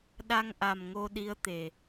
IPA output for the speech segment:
ɗ a˧ ŋ ʔ a˨˩ m ŋ o˧ ɗ i˧˥ ə̯ t̪ e˨˩

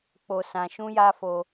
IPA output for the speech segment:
k͡p o˧ s ã˧ ʃ ũ˦ j a˦ f o˧

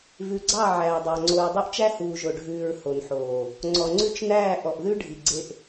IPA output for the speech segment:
v ʉ˨ ɡ͡ǀ ɑ˦˨ ʕ æː˨ dˤ ɑ˨ ŋ͡ǀ o˨ ɹ dˤ u˦ ʔ t͡ʃ æ˦ h uː˨ ʒ o˨ ɖʱ ʉː˨ ɹ h o˨ n ħ oː˨ | ŋ͡ǀ ɔ˨ ŋ͡ǀ ʉ˦ t͡ʃ n æː˦˨ ʔ ɔ˨ ʔ ð ʉ˦ ɖʱ i˨ ɡ͡ǀ e˦ ʔ

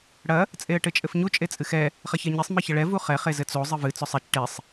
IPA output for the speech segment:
ɽ ɐ | t͡sʼ e ə̯ ʈ ɘ t͡ʃʼ ɘ f ɲ u t͡ʃʼ e t͡sʼ ɨ x ɛ | χ ɐ ç ɛ ɲ i sˤ m i ç ɐ ɭ ɛ v u χ ɛ χ e z ɘ t͡s o zˤ ɨ v ɨ t͡s ɔ sˤ ɛ t͡ʃ ʈ e sˤ

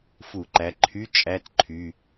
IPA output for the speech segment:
f u˧˩˧ ǃ æ˩˧˩ ǃʰ y˧˥˧ t͡ʃʼ æ˧˥˧ t ǃʰ y˩˧˩

